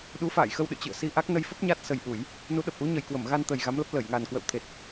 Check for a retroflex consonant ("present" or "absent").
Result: absent